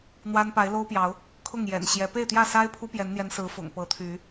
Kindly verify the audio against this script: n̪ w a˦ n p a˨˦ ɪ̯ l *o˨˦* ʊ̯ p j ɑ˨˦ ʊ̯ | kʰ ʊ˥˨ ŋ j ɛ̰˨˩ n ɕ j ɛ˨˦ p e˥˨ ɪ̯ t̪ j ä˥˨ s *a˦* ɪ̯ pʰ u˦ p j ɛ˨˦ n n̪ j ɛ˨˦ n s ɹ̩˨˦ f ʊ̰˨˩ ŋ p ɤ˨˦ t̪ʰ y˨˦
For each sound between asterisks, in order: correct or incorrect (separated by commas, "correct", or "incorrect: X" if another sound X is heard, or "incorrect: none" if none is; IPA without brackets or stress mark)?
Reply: incorrect: o˦, correct